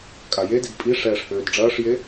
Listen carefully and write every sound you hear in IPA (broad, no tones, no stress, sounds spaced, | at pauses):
kʼ a j e d i d pʼ i ʂ ɛː ʂ h øː d ɖ͡ʐ ɐː ʂ j e